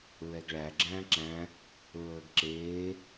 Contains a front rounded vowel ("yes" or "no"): no